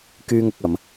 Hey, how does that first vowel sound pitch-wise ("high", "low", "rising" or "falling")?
high